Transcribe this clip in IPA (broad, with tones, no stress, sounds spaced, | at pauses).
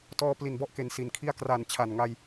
t ɔː˧ p l i˨˩ n b ɔ˥˩ ʔ k e˨˩ n s i˩˦ n kʰ i˥˩ a̯ k r a˨˩ n t͡ɕʰ a˨˩ n ŋ a˧ j